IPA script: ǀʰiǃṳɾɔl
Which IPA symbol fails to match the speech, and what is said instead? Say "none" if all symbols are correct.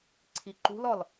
ɾ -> l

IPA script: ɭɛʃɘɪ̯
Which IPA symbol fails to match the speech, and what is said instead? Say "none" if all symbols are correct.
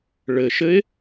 ɛ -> ɘ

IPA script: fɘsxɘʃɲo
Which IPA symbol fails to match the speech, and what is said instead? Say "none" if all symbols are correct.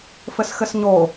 ʃ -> s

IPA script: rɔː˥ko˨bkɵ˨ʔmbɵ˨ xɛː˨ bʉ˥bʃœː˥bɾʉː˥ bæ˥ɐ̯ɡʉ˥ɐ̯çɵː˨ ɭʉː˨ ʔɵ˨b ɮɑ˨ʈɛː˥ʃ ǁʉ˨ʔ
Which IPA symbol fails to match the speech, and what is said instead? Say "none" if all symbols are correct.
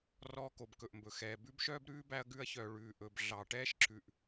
ɵː˨ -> œː˨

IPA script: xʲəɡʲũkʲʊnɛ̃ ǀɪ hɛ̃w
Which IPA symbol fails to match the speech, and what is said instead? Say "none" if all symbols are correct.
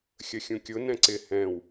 ɡʲ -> xʲ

